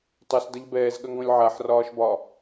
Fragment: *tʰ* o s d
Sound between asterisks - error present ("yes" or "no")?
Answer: yes